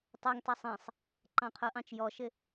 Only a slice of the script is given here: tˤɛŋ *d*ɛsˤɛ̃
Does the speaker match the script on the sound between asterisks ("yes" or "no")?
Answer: no